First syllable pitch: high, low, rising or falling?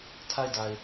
falling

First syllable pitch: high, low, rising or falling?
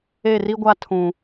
falling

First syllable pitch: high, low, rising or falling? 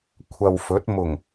low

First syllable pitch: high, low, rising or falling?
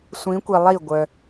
rising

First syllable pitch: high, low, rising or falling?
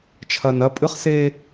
low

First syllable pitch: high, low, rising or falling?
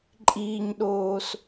low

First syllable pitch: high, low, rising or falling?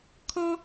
high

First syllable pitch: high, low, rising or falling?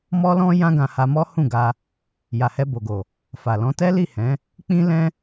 high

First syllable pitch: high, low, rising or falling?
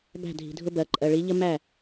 falling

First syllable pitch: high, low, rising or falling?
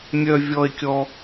high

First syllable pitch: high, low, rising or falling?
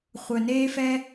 low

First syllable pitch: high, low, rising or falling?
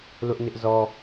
high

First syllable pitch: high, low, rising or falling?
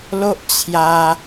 high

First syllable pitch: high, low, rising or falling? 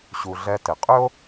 low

